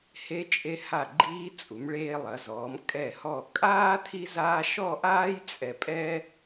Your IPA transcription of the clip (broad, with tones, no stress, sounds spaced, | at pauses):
h e˧ t͡ʃʼ e˧ h a˧˩ ɡ͡ǃ iː˧ t͡sʼ u˩˧ m ɭ eː˧ lˠ ɐ˩˧ z ɔː˩˧ m kʼ ɛ˧˩ h ɔ˧˩ kʼ aː˥ tʰ i˥ z aː˥ ʃ ɔ˥˧ ʔ aː˥ j t͡sʼ ɛ˧ pʼ ɛ˥